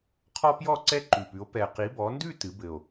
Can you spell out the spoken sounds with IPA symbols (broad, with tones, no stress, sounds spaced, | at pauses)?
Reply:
qʰ ɔ˥ p j ɔ˥˧ ǀ ɛ˥ ǃ ʉ˨˩ p ʉ˨˦ o̯ p ɛ˨˩ q i˨˦ b ɔ˨˦ n d ʉ˥˧ t ɨ˨˦ b ɘ˨˩ o̯